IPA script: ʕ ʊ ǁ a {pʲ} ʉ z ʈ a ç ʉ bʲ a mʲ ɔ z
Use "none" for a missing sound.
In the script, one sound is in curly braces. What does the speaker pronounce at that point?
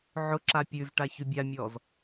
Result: pʲ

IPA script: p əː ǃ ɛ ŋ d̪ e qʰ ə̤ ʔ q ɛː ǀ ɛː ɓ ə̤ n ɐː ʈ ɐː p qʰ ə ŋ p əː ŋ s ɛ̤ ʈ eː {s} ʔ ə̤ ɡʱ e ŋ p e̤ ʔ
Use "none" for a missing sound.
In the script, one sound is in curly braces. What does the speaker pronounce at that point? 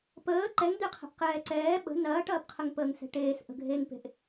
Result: s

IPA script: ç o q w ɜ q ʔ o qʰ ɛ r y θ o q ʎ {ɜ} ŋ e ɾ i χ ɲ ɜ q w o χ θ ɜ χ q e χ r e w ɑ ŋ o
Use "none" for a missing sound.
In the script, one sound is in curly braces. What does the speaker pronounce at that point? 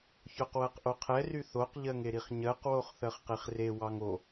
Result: ɜ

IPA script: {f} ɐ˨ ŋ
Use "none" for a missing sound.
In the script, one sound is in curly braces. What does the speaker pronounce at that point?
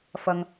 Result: f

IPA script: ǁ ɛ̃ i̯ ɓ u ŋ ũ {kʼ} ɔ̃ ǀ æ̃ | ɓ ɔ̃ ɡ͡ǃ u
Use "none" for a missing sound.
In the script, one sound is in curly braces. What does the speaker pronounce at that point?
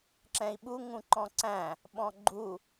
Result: ǃ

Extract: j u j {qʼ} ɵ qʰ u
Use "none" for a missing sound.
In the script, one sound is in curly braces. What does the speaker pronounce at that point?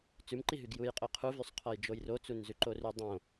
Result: qʼ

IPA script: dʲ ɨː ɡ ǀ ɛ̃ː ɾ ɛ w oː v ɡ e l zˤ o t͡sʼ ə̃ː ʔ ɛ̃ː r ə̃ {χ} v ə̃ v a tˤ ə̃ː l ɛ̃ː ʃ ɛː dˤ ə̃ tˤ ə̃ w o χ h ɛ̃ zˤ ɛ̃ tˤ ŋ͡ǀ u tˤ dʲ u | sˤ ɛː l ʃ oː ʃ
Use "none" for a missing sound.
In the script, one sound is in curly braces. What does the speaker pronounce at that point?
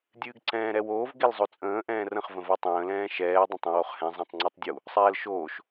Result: χ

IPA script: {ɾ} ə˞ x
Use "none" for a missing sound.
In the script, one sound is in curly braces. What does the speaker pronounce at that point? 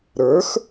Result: ɾ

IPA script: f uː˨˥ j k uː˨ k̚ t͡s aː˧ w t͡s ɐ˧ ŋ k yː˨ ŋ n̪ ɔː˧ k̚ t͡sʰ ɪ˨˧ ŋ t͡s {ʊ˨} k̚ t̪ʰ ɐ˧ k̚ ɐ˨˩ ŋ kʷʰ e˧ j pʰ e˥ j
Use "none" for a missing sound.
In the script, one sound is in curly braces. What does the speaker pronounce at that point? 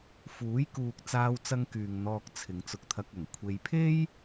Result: ʊ˨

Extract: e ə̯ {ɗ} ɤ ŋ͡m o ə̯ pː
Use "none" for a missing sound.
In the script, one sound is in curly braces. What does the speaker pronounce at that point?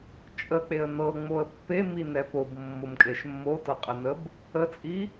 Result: n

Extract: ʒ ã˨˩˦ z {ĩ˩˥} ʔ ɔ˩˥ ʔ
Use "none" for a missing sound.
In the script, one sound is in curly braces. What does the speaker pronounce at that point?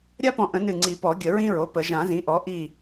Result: ĩ˩˥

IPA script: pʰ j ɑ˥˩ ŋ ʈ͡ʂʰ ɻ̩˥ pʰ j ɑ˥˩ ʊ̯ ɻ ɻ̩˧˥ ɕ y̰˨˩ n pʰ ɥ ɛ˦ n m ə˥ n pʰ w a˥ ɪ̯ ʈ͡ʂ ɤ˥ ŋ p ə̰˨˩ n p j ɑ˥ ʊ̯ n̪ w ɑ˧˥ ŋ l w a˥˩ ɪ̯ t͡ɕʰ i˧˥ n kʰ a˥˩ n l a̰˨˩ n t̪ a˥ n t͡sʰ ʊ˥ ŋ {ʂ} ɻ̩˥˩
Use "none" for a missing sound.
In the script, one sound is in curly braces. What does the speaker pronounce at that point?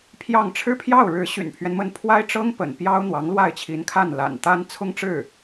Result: ʈ͡ʂ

